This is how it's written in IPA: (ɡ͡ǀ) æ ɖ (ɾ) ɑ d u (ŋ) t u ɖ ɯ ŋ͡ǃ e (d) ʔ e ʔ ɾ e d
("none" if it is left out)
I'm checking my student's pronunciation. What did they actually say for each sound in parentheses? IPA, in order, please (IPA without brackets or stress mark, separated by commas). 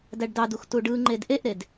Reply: d, d, x, d